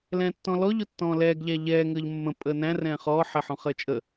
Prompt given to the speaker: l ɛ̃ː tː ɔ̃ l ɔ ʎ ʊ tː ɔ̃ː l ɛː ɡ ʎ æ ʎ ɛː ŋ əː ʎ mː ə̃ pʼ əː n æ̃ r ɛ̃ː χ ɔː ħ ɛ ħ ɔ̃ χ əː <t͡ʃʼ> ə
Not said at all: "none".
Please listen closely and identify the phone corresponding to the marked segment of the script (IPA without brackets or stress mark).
t͡ʃʼ